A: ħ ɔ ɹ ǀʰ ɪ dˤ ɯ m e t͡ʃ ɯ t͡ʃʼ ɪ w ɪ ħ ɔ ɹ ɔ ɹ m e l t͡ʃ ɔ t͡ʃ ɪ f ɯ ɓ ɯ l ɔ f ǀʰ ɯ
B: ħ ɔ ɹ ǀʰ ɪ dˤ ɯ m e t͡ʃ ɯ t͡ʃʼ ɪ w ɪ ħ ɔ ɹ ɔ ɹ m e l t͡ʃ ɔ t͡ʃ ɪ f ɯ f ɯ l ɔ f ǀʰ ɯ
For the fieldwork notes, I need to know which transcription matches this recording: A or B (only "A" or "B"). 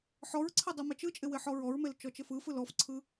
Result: B